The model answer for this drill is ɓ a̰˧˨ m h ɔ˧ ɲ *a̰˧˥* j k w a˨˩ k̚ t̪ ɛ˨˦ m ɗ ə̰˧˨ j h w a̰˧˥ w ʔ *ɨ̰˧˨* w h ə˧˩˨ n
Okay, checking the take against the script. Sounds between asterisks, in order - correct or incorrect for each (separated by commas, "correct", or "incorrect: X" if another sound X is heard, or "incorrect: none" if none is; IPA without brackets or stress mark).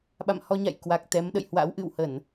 incorrect: a̰˧˨, correct